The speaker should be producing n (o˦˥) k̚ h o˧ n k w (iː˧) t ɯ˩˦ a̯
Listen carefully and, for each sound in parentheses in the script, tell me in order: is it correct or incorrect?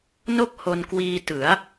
incorrect: o˥˩, correct

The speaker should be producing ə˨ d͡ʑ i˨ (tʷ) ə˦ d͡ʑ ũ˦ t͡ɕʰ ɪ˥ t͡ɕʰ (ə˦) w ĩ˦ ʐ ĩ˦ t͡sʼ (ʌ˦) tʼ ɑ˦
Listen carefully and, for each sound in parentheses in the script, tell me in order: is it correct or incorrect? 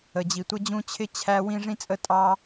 correct, incorrect: æ˦, incorrect: ə˦

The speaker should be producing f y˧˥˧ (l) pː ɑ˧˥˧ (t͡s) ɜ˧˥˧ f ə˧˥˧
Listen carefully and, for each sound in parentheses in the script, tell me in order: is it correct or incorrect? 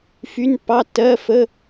incorrect: n, incorrect: tː

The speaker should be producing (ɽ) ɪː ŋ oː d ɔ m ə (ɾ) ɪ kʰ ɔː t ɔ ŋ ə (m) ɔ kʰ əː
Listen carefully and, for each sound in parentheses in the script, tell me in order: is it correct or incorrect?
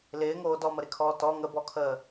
incorrect: l, correct, incorrect: b

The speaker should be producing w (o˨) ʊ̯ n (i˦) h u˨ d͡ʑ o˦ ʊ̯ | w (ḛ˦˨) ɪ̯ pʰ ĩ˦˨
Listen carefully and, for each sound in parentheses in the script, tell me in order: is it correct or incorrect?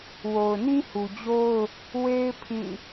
correct, incorrect: ĩ˦, incorrect: e˦

